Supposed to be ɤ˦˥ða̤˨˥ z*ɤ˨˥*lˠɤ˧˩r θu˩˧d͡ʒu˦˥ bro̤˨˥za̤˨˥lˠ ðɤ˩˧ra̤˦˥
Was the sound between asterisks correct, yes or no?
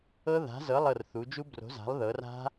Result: yes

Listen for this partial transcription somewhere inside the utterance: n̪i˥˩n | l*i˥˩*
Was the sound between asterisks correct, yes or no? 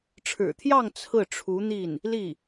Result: yes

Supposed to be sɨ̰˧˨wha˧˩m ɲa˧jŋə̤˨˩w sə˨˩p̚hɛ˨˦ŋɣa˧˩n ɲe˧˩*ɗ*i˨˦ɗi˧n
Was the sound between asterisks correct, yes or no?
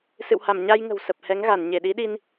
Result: yes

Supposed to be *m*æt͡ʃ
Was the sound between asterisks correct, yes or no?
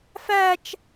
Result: no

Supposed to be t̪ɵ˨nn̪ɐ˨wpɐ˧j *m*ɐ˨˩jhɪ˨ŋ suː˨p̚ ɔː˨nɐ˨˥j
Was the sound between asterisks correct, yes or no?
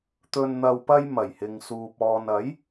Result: yes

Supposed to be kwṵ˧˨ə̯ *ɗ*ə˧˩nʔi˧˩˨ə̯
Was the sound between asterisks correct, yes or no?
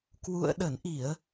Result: yes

